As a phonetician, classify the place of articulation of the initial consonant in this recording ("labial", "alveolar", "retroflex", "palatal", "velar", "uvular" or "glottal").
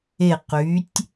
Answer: uvular